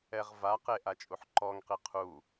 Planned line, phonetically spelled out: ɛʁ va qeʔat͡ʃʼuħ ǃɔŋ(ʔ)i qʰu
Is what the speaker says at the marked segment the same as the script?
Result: no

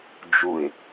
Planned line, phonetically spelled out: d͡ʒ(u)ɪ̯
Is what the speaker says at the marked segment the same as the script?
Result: yes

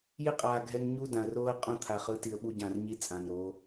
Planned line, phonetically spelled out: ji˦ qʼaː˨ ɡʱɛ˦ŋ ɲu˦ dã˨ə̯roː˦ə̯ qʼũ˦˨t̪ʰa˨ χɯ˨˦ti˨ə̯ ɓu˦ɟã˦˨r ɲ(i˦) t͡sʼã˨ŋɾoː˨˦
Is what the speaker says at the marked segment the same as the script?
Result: yes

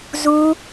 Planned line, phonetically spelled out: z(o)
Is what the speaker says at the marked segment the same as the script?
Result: no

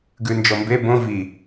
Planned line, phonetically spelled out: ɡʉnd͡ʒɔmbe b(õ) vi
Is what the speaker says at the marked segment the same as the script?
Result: yes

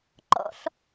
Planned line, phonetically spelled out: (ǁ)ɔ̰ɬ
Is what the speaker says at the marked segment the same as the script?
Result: no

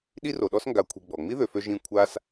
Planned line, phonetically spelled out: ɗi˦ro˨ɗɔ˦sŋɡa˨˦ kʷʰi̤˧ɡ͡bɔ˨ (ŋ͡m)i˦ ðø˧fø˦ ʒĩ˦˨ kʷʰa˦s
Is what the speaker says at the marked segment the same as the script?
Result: yes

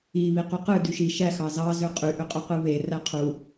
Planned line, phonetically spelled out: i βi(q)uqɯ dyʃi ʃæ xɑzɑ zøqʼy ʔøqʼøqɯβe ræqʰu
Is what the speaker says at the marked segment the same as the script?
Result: yes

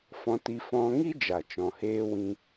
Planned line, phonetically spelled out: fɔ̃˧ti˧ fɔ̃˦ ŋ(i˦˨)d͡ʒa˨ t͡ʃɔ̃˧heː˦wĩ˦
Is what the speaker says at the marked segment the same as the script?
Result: no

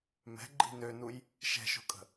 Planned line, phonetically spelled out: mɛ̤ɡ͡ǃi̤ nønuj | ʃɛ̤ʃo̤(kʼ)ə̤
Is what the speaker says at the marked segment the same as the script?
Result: yes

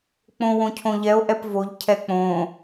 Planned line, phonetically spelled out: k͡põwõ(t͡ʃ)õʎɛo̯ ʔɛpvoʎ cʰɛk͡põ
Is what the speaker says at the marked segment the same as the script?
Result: no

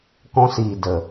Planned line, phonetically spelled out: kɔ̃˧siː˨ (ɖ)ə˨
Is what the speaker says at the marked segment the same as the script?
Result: no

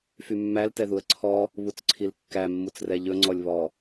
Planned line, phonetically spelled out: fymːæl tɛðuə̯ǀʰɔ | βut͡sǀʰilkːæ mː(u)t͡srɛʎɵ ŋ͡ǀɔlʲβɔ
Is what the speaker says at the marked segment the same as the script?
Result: yes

